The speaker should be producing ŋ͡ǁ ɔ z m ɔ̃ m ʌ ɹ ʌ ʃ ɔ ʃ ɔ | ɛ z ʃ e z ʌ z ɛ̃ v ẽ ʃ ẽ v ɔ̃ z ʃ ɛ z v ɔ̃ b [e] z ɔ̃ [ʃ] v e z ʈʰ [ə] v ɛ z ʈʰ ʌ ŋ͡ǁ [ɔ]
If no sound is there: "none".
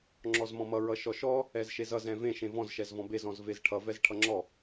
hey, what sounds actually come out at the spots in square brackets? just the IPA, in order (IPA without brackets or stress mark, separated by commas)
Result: e, z, ʌ, ɔ